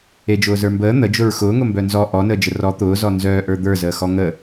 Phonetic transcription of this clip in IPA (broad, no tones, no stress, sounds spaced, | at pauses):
e d͡ʒ ʊː z ə˞ m b əː n̪ ə d͡ʒ ʊ ɹ x ʊː ŋ ʊ m b œ n z ɔ ʔ ɔ n əː d͡ʒ ə r ɔ t̪ ʊː z ɔ n z œː ʔ ə˞ d̪ ə˞ z əː x ɔ ŋ ə